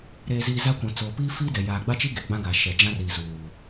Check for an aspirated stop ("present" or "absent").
absent